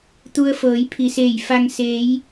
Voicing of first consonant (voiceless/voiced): voiceless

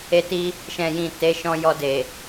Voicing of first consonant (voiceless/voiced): voiceless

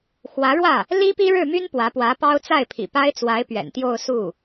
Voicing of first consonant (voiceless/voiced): voiceless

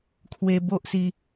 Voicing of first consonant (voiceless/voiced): voiceless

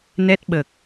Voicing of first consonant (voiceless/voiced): voiced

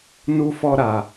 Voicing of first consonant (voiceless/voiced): voiced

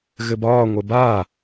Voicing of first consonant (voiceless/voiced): voiced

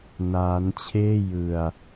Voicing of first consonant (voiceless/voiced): voiced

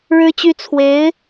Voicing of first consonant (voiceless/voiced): voiced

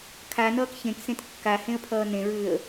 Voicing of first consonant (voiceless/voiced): voiceless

